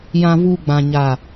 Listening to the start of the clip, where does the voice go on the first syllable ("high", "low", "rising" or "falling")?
low